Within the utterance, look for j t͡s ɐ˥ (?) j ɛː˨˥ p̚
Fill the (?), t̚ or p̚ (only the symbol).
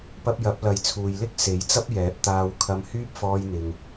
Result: p̚